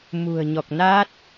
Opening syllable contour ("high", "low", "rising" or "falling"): low